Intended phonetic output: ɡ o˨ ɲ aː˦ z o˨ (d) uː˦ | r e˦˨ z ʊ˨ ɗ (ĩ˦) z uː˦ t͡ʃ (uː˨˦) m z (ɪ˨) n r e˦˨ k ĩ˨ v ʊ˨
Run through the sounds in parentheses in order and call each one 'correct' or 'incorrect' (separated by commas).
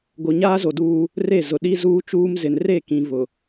correct, incorrect, incorrect, correct